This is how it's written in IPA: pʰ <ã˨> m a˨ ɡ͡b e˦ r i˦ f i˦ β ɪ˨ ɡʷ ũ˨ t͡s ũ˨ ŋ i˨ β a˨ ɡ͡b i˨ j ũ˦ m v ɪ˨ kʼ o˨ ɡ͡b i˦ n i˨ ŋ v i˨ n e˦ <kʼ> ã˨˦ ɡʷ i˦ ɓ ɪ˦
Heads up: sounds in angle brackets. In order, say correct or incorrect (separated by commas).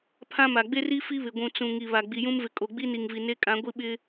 incorrect, correct